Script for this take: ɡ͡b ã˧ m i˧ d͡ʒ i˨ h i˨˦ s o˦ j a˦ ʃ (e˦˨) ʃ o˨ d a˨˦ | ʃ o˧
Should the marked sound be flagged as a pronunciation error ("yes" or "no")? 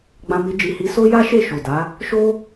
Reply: no